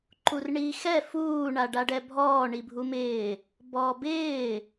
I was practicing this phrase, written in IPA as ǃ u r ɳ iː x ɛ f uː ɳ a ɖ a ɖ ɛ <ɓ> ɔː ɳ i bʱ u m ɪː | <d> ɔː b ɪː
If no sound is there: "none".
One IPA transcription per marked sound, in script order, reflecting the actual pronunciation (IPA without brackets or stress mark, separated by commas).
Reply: bʱ, b